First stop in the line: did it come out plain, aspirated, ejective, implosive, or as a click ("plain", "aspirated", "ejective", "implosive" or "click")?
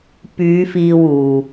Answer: plain